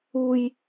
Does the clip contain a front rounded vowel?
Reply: no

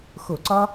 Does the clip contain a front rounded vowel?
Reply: no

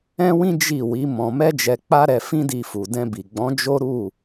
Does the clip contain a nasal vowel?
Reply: yes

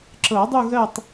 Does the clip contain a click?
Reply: yes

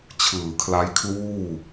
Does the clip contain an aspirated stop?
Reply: yes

